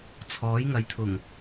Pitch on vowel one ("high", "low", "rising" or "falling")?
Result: rising